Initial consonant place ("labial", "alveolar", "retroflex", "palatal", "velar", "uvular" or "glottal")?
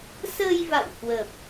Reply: alveolar